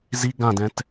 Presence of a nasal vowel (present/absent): present